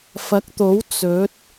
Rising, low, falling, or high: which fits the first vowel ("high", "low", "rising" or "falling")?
rising